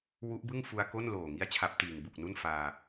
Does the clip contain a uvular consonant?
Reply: no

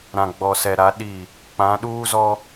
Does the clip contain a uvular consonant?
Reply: no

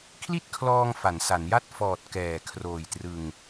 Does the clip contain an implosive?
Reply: no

